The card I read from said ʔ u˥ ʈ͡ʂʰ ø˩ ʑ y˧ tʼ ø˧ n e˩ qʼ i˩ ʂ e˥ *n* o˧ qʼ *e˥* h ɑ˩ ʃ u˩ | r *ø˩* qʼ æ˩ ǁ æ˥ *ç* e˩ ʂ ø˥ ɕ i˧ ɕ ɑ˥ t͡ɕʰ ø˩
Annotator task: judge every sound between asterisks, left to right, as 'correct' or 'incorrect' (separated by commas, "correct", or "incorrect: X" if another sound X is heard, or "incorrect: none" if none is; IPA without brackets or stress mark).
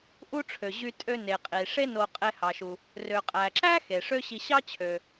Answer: correct, incorrect: e˧, correct, incorrect: x